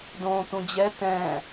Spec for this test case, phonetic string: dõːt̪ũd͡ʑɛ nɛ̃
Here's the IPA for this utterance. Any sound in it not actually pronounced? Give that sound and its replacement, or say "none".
n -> t̪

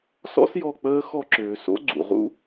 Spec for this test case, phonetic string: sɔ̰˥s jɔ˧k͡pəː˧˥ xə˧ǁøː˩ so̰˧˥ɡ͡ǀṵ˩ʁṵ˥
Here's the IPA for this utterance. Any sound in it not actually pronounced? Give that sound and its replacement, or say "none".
ə˧ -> ɔ˧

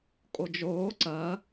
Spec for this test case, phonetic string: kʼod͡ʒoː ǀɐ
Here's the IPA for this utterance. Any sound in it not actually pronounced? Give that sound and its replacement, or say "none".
none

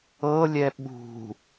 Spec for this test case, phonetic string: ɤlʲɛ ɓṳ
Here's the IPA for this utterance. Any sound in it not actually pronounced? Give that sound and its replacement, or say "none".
none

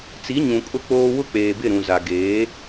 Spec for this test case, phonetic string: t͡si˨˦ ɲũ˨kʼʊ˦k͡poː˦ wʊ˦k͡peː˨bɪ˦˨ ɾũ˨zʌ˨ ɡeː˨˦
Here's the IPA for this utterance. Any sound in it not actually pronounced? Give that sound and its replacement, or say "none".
ʌ˨ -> a˨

